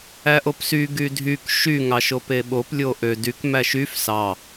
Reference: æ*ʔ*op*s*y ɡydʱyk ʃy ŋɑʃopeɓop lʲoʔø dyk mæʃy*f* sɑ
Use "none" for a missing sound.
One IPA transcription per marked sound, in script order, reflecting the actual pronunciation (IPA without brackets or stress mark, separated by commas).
ʔ, s, f